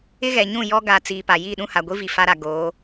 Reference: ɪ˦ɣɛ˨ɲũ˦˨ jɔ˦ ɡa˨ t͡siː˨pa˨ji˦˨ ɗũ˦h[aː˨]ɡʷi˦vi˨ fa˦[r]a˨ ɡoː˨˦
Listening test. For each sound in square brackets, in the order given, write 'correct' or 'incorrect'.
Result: incorrect: a˨, incorrect: ɾ

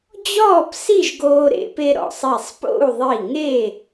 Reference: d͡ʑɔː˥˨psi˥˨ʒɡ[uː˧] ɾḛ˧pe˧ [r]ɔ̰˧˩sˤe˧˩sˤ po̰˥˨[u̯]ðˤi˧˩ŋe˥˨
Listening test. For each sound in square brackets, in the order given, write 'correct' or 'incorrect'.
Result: incorrect: oː˧, incorrect: ɾ, correct

